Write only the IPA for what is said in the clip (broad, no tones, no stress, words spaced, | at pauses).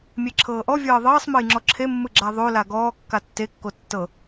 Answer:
mʲeǁʰɤːʔɔ vʲɤːðˤɤːsˤmɤj ŋ͡ǁɔǁʰemːɯ ɡ͡ǁaðˤo laɡɔːkːa tːekːo tːɤ